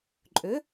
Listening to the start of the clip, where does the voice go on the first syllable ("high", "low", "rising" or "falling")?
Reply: rising